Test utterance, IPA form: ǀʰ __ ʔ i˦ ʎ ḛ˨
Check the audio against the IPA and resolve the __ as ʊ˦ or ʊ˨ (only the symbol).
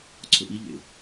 ʊ˨